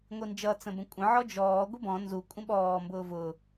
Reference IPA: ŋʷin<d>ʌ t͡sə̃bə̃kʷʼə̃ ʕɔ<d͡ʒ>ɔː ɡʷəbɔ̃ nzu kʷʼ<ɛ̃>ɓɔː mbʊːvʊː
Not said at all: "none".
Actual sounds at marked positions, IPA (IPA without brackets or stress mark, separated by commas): d͡ʒ, d͡ʒ, ə̃